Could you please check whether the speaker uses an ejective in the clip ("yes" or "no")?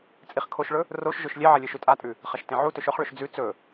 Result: yes